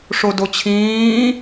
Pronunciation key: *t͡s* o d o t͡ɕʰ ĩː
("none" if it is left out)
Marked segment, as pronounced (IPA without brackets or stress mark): ʂ